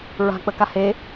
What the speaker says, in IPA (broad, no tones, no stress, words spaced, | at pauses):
ɹa̤ k͡pəkahe